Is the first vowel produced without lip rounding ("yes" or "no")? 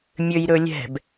no